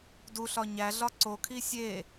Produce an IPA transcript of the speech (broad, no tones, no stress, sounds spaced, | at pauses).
d u ɬ ɒ ɲ æ ɮ ɒ ǀ o kʰ i sʲ e